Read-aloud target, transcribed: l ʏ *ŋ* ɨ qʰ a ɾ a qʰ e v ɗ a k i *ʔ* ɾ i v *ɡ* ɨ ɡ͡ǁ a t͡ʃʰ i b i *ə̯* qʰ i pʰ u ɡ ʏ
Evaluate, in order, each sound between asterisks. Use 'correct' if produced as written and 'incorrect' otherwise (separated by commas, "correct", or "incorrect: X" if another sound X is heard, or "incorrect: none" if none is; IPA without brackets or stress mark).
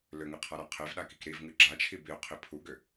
correct, incorrect: k, incorrect: ŋ, incorrect: ʊ̯